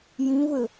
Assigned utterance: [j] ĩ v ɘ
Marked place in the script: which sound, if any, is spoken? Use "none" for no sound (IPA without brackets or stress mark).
j